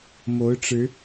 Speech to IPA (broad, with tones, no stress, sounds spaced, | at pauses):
m o˨˦ ʊ̯ ʈ͡ʂ ɻ̩˨˦